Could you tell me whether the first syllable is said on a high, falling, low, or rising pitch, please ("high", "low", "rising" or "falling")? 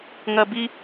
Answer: high